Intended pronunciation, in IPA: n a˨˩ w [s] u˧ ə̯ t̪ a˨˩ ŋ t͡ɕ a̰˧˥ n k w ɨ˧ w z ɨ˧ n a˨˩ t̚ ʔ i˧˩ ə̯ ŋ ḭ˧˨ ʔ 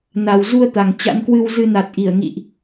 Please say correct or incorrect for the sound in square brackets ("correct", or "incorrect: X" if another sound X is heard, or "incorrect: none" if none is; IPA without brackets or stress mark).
incorrect: z